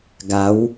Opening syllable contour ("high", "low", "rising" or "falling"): rising